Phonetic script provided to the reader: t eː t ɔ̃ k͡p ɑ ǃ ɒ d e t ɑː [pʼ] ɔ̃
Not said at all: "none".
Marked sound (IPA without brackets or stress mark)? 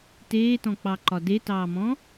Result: m